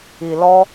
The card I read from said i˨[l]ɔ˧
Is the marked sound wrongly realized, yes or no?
no